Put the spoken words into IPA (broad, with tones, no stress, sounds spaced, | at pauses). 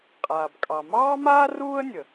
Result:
qʼ aː˩ b kʼ ɑ˩ m ɑː˥ m aː˥ r uː˥ ə̯ nʲ ə˩